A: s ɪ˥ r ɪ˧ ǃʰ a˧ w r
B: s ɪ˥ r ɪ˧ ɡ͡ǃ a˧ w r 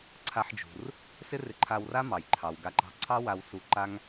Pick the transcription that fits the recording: A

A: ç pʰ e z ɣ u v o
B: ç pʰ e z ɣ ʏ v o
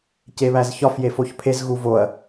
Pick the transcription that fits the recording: A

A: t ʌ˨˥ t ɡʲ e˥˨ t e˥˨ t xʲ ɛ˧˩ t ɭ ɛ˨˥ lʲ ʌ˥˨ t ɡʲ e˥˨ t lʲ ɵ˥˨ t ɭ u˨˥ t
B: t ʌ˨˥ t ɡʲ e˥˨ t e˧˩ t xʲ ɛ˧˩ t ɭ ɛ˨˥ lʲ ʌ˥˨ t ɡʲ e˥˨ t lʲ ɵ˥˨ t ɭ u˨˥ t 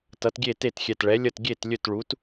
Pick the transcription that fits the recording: A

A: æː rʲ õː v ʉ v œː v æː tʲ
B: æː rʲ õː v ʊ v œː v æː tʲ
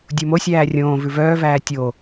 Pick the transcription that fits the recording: A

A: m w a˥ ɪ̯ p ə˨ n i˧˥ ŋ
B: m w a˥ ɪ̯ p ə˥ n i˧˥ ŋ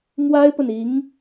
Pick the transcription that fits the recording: A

